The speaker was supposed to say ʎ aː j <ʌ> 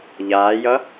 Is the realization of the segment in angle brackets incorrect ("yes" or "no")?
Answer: no